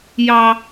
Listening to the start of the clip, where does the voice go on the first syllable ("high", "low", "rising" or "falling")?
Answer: high